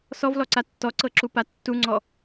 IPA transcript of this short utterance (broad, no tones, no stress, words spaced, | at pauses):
sɔvlɔǀa tːɔǀɤǁupa tːuŋ͡ǀɔ